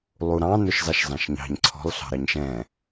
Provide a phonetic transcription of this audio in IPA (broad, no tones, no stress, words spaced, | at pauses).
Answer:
lˠuɾɑ̃ nʊʃzɑʃzɑ̃ʃɲɑ̤ɲ ǀʰɔ̤lˠ ɬɑ̤ɾɑɲʃɛ̃